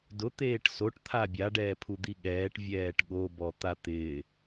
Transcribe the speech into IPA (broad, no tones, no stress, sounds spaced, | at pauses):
d ʊ t̪ eː ʈ s o ʈ t̪ʰ a bʲ a ɖ ɛː pʰ u d̪ i ɠ ɛː ʈ vʲ ɛː ʈ ɠ o b ɔ t̪ a t̪ ɪː